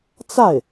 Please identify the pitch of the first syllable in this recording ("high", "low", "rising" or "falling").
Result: falling